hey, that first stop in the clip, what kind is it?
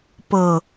plain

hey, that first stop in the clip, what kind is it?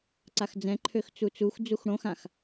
click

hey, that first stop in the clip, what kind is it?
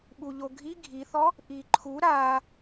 implosive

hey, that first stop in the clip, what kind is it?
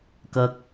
plain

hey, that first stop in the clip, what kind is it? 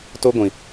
plain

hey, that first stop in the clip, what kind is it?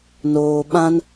implosive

